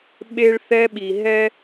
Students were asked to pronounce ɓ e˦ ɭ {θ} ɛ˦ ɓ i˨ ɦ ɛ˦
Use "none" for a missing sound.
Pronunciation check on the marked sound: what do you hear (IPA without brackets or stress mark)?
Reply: θ